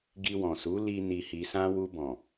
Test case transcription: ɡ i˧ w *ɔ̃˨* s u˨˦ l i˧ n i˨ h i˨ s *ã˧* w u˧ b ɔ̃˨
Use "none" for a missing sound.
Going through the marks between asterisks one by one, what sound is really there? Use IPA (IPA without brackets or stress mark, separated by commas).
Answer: ɔ̃˨, ã˧